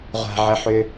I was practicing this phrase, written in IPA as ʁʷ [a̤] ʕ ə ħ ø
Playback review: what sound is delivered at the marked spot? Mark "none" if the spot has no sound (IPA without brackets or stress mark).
a̤